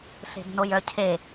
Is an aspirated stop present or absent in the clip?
present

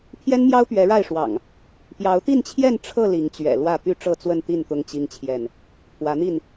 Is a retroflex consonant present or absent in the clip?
present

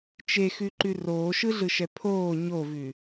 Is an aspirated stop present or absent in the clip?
present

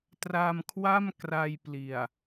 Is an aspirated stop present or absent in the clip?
present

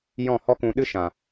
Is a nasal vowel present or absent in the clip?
present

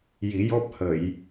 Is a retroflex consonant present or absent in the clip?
absent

